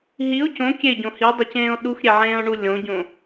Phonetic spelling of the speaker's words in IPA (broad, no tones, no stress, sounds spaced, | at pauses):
ɦ i o̯ c õ kʲ e ɟ õ h i dˤ ɛ c ẽː o̯ ɗ u x ɾʲ e ʕ ẽː o̯ ɳ u lʲ õ ɟ õ